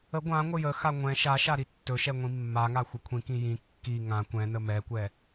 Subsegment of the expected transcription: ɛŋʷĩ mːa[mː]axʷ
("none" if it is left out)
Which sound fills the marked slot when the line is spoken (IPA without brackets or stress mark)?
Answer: ŋ